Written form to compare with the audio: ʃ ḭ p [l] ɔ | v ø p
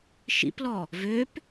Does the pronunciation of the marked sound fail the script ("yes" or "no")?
no